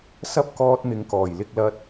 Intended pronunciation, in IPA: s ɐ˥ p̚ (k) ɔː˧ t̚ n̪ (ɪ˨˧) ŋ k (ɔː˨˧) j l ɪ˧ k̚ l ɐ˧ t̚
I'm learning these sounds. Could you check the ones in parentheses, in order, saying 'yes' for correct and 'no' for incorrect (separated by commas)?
yes, yes, no